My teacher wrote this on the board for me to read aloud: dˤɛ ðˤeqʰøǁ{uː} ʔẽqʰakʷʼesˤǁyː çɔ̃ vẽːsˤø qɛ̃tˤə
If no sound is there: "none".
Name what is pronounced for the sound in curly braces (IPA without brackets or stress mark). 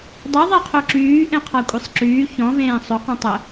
yː